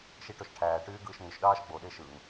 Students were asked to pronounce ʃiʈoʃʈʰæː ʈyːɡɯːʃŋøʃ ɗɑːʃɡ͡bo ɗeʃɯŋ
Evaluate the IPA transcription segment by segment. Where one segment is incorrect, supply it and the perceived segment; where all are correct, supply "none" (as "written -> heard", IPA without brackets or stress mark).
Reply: none